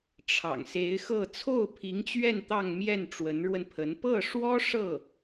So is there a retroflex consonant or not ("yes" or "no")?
yes